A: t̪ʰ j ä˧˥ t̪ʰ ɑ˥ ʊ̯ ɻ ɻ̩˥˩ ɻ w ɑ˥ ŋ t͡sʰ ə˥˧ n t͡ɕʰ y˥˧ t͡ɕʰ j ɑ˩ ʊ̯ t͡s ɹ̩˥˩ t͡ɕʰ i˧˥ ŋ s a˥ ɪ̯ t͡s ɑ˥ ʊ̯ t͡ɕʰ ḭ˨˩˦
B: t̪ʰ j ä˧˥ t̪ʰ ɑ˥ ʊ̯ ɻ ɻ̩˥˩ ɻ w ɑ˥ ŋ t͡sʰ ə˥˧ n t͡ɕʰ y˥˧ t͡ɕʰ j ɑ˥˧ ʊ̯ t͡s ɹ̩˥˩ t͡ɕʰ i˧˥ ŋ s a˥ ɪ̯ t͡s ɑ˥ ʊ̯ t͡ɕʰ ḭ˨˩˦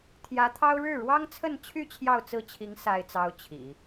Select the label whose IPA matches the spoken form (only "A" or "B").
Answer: B